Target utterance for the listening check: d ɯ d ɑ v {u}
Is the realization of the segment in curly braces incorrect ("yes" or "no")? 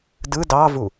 no